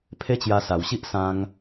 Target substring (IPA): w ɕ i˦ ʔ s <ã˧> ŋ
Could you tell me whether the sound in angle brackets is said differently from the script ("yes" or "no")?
no